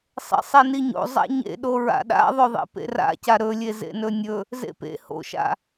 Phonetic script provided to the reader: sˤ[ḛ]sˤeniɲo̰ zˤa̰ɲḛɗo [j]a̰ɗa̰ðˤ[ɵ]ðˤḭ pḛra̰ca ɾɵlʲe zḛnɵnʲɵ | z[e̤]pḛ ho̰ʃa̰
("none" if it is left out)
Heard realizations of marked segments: ḛ, ɹ, ɵ, ḛ

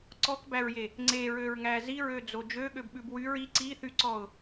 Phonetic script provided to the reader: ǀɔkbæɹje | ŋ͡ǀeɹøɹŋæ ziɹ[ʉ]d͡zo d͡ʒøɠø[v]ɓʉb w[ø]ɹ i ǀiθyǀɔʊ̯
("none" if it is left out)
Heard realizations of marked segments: ø, b, y

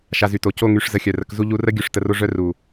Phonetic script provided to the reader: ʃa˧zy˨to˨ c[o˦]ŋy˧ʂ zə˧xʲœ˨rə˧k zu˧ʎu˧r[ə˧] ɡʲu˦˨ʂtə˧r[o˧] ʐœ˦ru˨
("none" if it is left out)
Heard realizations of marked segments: o˦, ə˦, o˦

